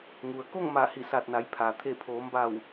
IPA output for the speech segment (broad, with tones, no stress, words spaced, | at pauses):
ŋu˩ə̯ko˥˨ŋma˧˩ hi˧˩sa˧˩t̚na˩˧jpʰaː˩ t̪ʰe˧˩pʰoː˩˧mba˧˩w